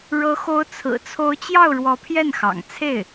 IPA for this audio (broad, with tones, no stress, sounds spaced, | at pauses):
ɻ ɤ˧˥ x o˧˥ ʊ̯ t͡sʰ ɹ̩˨˩ t͡sʰ o˧˥ ʊ̯ t͡ɕ j ɑ˥˩ ʊ̯ ɻ w ɔ˧˥ pʰ j ɛ˥˩ n x ɑ̰˨˩ ŋ t͡sʰ e˥˩ ɪ̯